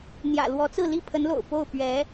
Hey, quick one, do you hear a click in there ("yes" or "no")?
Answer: no